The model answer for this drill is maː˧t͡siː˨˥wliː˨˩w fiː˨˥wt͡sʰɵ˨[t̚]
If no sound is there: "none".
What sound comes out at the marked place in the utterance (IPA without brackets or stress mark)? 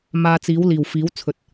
t̚